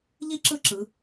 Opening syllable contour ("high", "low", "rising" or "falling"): high